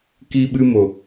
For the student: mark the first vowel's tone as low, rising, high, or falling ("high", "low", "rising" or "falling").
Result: high